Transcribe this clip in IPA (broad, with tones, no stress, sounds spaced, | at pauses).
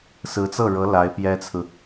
s ɹ̩˧˥ t͡s ɤ˥˩ ɻ ɤ˧˥ l a˧˥ ɪ̯ p j ɛ˥ t͡sʰ ɹ̩˨